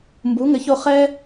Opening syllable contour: rising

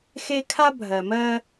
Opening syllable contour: high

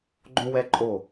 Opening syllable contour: high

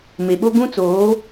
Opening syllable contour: low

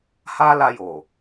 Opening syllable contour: high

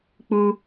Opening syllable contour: high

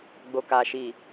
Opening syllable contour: low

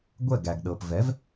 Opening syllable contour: falling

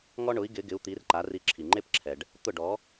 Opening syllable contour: high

